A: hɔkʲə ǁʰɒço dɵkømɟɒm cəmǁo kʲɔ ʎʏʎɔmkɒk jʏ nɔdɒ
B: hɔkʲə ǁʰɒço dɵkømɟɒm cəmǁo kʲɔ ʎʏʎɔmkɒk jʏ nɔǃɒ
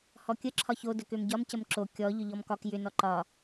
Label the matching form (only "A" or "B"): B